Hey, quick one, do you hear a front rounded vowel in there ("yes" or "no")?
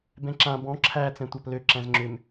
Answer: yes